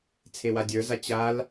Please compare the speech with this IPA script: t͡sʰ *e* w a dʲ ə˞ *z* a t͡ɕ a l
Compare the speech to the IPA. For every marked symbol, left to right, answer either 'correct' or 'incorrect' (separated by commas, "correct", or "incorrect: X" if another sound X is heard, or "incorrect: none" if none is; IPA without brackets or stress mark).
correct, correct